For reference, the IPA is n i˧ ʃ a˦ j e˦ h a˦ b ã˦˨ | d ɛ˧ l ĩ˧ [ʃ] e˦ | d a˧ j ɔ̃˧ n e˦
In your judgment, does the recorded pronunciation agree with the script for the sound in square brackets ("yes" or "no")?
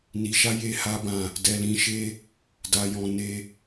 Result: yes